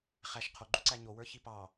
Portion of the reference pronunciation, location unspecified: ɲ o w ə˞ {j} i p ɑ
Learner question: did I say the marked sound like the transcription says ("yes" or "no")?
no